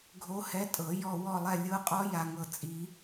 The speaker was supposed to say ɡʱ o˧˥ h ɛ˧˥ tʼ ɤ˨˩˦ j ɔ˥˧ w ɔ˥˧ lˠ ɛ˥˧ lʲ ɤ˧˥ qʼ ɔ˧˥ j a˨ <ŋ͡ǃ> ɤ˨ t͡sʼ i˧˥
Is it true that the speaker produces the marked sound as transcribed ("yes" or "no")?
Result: no